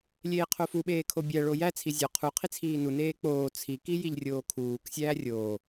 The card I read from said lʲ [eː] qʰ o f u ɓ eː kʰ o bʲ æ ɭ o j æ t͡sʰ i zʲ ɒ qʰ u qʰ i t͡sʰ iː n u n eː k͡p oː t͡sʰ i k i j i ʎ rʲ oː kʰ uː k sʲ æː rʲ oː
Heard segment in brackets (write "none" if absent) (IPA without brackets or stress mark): eː